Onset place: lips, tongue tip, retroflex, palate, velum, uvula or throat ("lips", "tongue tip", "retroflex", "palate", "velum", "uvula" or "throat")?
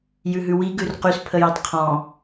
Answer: palate